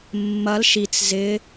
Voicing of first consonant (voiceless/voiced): voiced